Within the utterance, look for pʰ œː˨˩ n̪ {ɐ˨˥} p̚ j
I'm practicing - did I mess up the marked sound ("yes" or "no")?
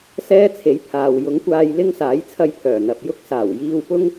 yes